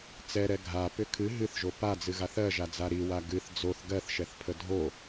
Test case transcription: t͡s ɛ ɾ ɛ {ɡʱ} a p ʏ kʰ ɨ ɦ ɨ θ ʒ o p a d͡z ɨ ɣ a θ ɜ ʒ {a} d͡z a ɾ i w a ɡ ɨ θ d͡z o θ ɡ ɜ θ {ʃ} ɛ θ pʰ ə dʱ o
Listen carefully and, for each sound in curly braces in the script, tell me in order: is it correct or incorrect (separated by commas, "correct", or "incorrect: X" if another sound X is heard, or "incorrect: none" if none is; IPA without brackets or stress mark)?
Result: correct, correct, correct